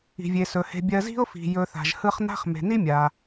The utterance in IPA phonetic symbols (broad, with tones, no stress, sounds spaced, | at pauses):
i̤˩ vʲ e˩ s ɵ˩ h e̤˨ bʲ ɜ˨ z i̤˦ ʊ̯ f i̤˩ j ɵ˨ θ a̤˩ ʒ h ɯ˦ χ n a̤˥ χ m e̤˩ n i˥ mʲ a˩